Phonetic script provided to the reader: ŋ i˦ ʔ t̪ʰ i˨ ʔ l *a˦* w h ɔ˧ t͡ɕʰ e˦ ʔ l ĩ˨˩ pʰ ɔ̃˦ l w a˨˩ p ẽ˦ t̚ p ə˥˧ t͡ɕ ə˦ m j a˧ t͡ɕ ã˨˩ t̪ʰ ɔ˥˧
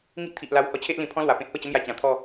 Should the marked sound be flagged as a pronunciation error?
yes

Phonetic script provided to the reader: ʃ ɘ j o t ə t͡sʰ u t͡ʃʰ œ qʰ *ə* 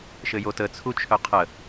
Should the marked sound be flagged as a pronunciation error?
no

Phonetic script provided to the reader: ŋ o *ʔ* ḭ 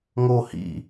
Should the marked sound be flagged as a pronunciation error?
yes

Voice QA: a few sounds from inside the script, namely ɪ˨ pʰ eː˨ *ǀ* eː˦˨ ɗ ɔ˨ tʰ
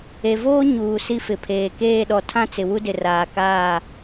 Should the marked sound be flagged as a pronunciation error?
yes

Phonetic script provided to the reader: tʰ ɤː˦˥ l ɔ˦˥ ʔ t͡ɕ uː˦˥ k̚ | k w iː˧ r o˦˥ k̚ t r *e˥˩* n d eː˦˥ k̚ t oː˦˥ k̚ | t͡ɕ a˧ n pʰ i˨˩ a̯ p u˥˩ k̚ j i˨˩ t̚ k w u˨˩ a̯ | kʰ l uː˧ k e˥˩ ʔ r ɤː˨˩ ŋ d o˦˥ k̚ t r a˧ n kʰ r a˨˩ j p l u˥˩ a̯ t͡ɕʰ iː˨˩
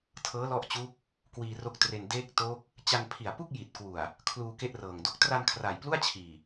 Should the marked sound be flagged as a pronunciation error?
yes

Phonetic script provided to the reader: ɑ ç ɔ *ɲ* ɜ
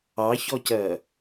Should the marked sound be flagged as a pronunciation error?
yes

